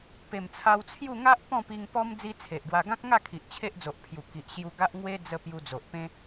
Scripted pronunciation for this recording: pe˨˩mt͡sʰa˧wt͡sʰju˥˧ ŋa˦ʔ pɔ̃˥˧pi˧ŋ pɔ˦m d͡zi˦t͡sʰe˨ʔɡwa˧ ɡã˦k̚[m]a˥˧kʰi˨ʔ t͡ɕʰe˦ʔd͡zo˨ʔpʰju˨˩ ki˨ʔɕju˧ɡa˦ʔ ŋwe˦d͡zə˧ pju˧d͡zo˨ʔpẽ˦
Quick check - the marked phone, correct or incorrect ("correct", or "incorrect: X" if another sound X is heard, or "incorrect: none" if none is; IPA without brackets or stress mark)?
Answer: incorrect: ŋ